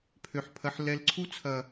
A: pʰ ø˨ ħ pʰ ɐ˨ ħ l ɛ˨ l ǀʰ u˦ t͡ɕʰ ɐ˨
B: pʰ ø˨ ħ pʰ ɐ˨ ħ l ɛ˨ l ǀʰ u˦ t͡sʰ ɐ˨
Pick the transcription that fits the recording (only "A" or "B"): B